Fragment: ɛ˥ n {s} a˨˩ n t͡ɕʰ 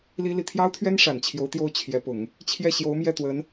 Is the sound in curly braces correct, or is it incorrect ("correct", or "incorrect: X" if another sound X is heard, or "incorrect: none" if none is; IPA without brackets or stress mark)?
incorrect: ʂ